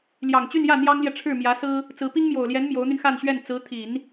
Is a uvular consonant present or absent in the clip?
absent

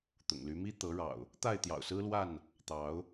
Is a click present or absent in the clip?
absent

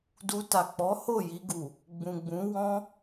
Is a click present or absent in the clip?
absent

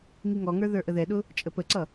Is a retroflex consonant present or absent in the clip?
absent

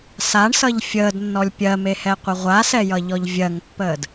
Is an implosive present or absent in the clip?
absent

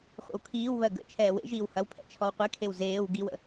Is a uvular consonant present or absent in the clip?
present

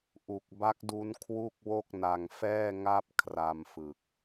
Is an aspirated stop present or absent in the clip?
present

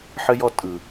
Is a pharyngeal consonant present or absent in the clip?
present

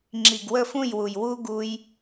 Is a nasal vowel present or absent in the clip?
present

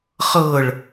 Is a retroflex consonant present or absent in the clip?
present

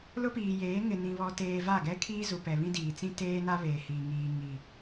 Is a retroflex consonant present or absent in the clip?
absent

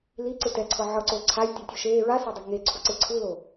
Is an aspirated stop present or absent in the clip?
present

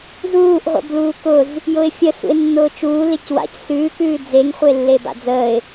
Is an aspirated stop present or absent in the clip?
absent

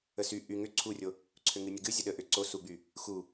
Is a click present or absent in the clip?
present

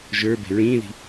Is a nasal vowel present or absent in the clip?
present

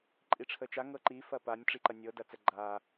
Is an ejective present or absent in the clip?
present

